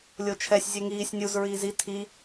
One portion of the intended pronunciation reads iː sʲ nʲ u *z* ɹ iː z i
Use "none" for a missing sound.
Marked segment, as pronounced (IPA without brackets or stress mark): z